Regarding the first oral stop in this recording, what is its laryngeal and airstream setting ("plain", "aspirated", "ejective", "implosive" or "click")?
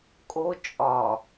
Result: ejective